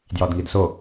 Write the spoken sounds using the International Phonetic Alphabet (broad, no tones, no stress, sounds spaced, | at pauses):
d j ɒ d ŋ i d s o